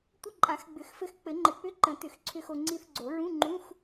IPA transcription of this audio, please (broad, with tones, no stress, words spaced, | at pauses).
tʷə˧˥˧ǃʼã˨˩˦xɡ͡bʏ˨˩˦xfɘ˧x k͡pɘ˨˩˦ŋ͡ǃɘ˨˩˦k͡pʏ˧˥˧ ǃə̃˨˩˦ tʏ˨˩˦xǀʰʏ˧xo˧ ŋ͡ǀi˧θɡ͡ǀo˨˩˦ɹũ˧˥˧ŋ͡ǃũ˧˥˧x